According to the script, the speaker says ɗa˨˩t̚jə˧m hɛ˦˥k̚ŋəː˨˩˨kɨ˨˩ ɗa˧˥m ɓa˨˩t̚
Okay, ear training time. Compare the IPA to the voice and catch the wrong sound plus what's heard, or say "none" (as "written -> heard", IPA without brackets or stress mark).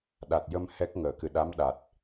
ɓ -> ɗ